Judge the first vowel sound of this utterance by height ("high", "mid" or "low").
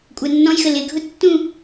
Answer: low